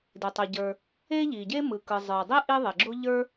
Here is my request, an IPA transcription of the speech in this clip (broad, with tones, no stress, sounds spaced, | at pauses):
d e˩ tˤ o˩ ɟ ə˞˩ | e˥ ʎ i˩ ɟ e˥ m ɯ˩ k ɯ˩ zˤ ə˞˩ dˤ i˥ ʔ i˥ ðˤ e˩ ɡ͡ǁ o˥ ʎ ə˞˥